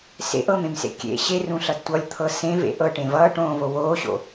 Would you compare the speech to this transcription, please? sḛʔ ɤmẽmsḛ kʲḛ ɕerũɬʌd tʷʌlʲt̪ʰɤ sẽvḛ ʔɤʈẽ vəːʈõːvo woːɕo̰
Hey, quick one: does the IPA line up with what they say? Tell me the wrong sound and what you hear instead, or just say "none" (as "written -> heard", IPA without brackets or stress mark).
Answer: əː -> ʌː